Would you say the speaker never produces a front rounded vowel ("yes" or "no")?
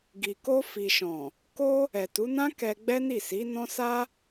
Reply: yes